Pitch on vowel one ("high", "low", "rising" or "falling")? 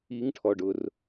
rising